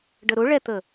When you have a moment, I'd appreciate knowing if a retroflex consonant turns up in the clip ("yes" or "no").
yes